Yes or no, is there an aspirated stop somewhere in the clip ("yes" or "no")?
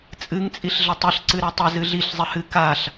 no